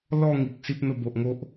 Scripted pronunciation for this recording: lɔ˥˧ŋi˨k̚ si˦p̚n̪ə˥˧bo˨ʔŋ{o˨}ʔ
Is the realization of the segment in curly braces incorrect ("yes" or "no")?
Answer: yes